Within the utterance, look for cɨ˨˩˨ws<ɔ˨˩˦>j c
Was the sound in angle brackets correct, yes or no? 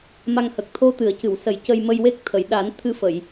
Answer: no